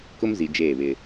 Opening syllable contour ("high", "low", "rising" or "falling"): high